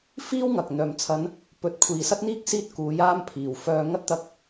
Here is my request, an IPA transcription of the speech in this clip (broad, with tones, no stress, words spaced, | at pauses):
fiː˥wŋɐ˨k̚ n̪œː˨˩mt͡sʰɐ˨˧n | pɵ˨˥t̚kʷʰiː˨sɐ˥t̚n̪iː˥k̚ siː˧t̚ kuː˨˧jaː˧m pʰiː˨˩wfœː˧ ŋɐ˥t̚t̪ɐ˧k̚